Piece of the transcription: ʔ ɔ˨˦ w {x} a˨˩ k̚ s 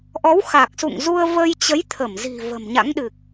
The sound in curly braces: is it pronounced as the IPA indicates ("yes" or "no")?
yes